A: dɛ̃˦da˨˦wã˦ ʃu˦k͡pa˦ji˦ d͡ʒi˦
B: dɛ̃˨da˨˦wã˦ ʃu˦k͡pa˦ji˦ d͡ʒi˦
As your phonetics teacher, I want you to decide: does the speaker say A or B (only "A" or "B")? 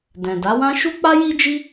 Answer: B